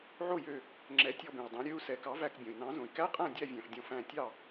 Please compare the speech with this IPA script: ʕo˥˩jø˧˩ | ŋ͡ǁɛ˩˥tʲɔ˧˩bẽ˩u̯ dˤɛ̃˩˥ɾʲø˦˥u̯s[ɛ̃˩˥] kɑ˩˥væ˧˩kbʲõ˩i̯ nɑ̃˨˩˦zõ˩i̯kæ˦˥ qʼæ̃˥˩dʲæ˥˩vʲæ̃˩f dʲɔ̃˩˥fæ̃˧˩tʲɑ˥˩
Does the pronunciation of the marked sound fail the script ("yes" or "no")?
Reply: yes